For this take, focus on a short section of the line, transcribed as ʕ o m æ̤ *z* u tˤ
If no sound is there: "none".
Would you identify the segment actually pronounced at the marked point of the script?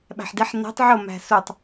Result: s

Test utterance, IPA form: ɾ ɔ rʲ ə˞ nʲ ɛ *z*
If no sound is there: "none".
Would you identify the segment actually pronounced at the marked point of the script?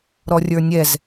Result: z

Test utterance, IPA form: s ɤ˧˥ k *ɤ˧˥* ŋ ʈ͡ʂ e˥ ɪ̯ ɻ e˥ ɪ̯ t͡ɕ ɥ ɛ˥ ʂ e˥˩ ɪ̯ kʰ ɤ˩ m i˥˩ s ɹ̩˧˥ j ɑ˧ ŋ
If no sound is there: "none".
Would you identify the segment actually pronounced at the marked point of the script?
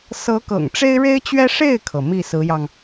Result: ɤ̰˨˩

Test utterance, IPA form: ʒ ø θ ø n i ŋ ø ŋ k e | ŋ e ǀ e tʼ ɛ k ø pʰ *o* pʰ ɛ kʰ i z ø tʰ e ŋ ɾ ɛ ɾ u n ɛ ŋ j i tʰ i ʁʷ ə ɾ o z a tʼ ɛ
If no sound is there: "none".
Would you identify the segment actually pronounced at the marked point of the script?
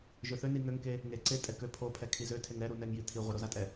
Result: o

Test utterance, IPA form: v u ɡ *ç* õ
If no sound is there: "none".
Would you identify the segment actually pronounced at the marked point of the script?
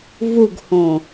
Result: h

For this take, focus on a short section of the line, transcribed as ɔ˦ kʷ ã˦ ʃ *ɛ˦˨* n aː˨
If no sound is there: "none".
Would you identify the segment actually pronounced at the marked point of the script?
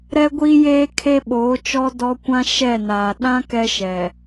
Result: ɛ˦˨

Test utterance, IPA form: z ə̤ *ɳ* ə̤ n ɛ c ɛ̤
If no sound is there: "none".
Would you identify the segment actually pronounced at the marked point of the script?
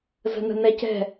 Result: n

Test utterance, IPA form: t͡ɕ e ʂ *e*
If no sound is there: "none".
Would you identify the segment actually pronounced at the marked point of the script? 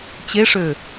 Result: ø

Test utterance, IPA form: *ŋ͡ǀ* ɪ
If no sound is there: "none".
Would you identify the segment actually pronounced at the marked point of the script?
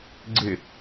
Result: ɡ͡ǀ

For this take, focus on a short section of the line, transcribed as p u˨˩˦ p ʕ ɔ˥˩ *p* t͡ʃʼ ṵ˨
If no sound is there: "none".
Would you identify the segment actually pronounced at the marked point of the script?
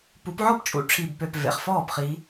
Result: p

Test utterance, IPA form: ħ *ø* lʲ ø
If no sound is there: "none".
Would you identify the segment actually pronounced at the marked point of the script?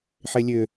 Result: e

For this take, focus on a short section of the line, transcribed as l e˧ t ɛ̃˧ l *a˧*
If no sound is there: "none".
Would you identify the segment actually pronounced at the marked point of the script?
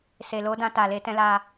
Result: a˧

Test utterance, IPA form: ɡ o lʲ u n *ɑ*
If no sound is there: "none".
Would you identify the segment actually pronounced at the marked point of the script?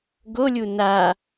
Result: a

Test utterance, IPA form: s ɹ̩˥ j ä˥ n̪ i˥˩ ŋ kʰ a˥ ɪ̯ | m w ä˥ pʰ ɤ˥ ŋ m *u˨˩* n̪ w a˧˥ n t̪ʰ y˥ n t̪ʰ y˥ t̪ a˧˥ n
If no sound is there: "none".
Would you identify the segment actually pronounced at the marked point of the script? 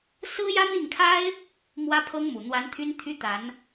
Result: u˨˩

